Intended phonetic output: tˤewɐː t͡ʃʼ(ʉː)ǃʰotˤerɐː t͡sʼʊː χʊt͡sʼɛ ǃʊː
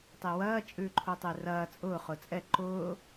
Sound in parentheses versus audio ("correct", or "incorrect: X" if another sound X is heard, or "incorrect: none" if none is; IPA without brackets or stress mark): correct